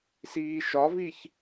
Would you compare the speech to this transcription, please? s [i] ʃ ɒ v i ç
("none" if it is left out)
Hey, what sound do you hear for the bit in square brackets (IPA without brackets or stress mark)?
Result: iː